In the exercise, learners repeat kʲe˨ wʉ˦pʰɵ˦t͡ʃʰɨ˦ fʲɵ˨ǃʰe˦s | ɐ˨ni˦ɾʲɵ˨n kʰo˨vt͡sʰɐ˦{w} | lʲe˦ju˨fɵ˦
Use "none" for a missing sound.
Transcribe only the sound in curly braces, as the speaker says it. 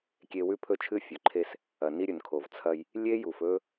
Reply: j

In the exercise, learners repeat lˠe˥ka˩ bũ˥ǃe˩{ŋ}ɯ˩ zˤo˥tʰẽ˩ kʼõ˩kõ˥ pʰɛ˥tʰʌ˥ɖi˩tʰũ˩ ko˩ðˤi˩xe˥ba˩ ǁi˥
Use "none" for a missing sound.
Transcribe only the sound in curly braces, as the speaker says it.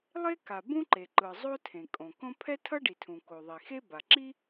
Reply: ǃ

